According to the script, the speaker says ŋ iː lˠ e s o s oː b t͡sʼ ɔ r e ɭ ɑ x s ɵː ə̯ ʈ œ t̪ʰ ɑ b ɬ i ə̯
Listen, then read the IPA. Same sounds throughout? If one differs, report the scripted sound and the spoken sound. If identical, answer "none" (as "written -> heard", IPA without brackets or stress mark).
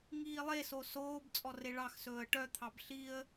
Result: none